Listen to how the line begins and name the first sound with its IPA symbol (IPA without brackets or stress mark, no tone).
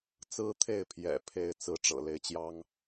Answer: t͡s